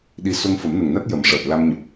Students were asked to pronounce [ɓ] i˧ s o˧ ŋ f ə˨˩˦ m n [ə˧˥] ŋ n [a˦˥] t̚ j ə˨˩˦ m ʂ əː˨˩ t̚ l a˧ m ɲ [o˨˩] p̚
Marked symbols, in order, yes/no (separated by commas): no, no, yes, yes